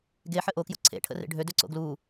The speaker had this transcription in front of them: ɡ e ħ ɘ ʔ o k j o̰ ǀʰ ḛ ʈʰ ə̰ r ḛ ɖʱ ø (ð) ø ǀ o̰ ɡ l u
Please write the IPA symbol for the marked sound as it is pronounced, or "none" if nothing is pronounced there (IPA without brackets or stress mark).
d